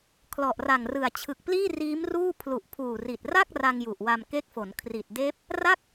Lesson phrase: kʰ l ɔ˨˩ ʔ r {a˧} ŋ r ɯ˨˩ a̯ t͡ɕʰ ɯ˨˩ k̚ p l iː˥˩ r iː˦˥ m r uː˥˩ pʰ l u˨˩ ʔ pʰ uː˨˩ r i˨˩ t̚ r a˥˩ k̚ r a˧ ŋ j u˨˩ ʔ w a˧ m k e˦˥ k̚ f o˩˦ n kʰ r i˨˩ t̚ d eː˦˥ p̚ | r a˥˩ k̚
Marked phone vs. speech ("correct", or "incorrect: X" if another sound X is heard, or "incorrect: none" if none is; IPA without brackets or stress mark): incorrect: a˨˩